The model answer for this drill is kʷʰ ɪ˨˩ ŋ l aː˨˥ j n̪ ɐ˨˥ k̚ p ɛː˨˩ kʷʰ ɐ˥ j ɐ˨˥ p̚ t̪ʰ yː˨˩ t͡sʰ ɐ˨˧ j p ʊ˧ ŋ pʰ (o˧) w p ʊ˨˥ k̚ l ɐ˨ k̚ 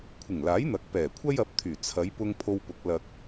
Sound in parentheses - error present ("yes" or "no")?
no